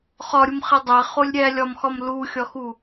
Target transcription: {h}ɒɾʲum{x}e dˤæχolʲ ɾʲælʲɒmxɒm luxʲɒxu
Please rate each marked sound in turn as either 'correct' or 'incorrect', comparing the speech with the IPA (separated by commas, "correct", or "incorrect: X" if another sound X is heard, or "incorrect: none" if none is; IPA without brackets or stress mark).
incorrect: χ, incorrect: χ